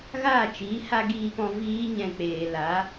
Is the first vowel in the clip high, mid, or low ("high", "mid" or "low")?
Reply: low